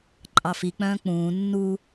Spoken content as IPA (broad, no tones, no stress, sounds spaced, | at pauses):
ǃʼ ɑ f i k͡p œ̃ː k͡p ũː nː u